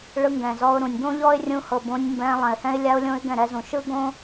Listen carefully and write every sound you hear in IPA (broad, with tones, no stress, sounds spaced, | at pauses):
ɭ ɯ˧ ŋ ɡ ɛ̃˨ z ɔ˧ ʊ̯ ɾ ũ˨ nʲ ɡ õ˦ ʎ ɔ˦ ɪ̯ rʲ ũ˧ h ɤ˨ b õ˧ nʲ m b ɛ̃˧ lˠ ɛ̃˨ ɪ̯ h ɛ̃˦ ɪ̯ lʲ a˦ ʊ̯ lʲ õ˦ ɪ̯ ɡ ɛ̃˦˨ ɾ ɛ˧ z ũ˨ ʃ ɯ˦ ɡ õ˦